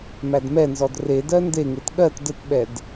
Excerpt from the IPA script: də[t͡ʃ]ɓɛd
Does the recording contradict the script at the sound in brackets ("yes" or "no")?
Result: yes